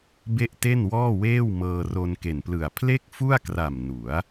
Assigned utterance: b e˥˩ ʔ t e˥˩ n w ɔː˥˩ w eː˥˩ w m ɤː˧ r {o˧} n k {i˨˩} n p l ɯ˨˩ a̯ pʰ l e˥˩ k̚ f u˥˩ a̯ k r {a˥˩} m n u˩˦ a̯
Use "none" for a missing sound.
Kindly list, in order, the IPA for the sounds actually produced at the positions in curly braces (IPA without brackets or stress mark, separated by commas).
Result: o˧, e˨˩, a˨˩